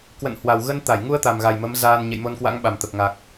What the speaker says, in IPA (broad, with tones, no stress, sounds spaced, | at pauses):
k w ə̰˧˨ n h w a˨˩ w ɣ ə˧ n t̪ a˧˩ j ŋ u˧ ə̯ t̪ a˨˩ m ɣ a˨˩ j m ə˨˦ m z aː˧ n ɲ ḛ˧˨ j m o˧ n k w a̰˧˥ ŋ ɓ a˨˩ m t̪ ə˨˩ p̚ ŋ a˨˩ k̚